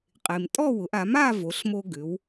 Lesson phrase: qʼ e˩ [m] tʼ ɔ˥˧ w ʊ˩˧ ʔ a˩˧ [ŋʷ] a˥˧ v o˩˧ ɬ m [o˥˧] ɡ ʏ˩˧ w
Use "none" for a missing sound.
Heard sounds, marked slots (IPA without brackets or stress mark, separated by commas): m, m, o˧